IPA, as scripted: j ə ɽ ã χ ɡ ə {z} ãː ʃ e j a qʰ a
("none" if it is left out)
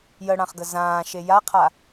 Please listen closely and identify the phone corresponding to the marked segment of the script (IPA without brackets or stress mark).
z